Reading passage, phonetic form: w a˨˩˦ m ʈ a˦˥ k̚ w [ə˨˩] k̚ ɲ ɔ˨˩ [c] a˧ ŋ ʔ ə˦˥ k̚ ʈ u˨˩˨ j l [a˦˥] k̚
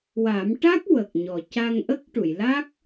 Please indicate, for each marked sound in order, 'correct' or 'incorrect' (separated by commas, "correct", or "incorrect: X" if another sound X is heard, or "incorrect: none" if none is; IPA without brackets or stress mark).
correct, correct, correct